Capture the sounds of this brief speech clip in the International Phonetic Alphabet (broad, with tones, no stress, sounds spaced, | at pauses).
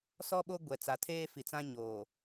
s ɔ˦ ɓ o˦ ɡʷ ɛ˨ t͡s a˨ tʰ eː˦ f i˨ t͡s ã˦ ɲ oː˨